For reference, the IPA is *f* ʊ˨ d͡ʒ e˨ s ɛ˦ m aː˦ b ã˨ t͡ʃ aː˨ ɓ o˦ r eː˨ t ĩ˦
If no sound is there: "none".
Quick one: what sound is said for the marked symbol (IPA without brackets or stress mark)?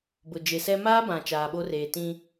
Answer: b